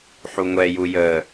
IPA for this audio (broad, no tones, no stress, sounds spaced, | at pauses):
ħ u ŋʷ ɛ j u j əː